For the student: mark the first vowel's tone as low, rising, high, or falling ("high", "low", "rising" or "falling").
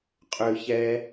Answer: high